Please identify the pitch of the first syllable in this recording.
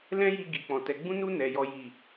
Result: high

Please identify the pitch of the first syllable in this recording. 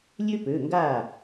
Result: high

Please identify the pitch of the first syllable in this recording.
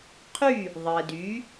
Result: falling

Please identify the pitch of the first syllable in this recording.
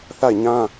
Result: falling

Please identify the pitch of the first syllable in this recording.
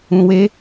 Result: low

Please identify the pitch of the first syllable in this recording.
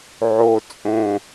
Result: low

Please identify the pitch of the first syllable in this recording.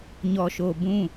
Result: low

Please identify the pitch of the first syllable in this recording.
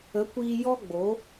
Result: rising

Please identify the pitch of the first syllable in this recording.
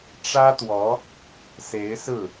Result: high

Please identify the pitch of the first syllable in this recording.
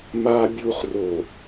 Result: high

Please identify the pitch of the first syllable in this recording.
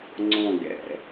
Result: falling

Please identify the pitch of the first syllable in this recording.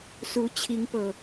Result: rising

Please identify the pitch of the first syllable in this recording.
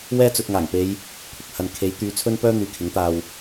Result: high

